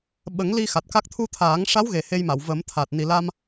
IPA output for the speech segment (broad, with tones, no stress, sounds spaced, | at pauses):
ɓ ə˨˩˦ ŋ l i˧ x a˨˩ t̚ k a˦˥ k̚ t̪ʰ u˧ t̪ʰ aː˨˩˦ ŋ ʂ a˧˥ w ɣ e˨˩ h e˧ j m a˨˩˨ w v ə˨˩˦ m t̪ʰ aː˨˩ t̚ n i˨˩ l a˧ m